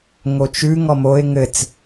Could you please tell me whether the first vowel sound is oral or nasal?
oral